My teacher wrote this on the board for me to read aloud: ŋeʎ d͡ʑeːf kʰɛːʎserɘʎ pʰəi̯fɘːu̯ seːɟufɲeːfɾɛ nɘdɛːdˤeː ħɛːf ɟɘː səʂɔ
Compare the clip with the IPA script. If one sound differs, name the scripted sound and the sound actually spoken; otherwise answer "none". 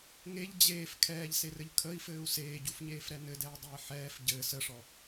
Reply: pʰ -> kʰ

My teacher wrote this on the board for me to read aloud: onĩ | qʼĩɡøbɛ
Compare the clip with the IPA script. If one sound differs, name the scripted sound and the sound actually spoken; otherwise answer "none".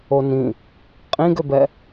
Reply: none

